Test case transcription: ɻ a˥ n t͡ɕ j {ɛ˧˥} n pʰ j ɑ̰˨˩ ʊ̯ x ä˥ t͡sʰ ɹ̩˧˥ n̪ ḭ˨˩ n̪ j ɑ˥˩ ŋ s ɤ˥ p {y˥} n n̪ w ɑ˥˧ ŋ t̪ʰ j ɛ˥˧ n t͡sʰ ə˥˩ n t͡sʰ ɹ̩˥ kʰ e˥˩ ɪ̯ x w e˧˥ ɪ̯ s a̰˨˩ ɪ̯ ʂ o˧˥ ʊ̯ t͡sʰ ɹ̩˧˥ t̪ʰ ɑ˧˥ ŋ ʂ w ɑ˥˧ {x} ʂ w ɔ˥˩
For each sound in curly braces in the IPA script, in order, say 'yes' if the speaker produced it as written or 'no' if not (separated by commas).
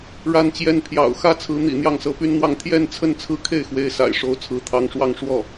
no, yes, no